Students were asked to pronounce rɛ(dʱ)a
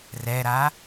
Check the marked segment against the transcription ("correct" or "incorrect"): incorrect